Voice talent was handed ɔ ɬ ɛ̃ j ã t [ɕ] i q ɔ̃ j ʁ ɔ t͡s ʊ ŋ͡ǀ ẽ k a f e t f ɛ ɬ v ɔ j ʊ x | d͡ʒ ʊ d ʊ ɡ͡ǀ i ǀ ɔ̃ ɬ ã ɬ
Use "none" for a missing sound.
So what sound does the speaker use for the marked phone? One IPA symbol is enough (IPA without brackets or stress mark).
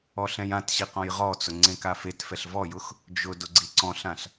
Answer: ɕ